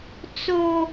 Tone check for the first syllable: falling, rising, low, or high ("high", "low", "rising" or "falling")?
high